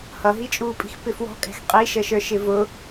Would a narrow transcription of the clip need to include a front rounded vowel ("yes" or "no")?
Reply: no